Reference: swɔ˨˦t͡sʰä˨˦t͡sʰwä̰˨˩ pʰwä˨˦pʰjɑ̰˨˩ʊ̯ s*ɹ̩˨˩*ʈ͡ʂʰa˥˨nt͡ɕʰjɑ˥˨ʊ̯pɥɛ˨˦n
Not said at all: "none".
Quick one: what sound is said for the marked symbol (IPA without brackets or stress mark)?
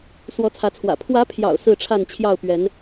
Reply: ɹ̩˥˨